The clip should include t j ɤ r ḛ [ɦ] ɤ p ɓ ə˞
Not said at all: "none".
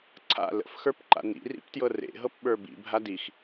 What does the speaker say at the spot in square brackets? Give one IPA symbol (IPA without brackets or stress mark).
ɦ